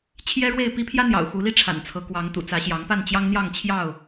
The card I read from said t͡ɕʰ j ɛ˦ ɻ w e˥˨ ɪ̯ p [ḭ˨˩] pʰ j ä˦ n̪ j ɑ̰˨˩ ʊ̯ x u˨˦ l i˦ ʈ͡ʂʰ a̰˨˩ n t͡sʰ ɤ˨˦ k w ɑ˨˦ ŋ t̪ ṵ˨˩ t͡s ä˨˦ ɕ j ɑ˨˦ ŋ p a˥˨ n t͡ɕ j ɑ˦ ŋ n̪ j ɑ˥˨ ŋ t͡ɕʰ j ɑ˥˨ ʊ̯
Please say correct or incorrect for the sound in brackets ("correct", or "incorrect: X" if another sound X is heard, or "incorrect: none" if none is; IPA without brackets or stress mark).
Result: incorrect: i˦